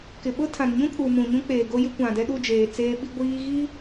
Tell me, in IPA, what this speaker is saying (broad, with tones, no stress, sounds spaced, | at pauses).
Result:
k ɪ˨ ɓ ʊ˦ tʰ ã˨ n ɲ ũ˦ kʼ u˨ m ũ˨ ɲ ũ˦ k͡p eː˨ ɡ o˦ j ɪ˦ kʷ ã˨ d ɛ˦ ɗ u˦˨ d͡ʒ eː˨ t͡s eː˦ ɓ i˦ ɡʷ iː˦ ɣ i˦